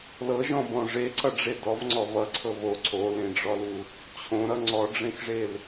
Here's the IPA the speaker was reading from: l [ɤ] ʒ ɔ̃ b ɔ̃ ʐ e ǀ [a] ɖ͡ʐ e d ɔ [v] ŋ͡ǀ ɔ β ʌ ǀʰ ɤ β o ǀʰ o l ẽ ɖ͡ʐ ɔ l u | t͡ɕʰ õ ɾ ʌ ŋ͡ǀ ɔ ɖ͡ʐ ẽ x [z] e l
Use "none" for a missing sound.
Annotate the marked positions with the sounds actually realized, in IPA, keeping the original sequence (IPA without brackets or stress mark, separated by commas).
ɤ, ʌ, v, ʐ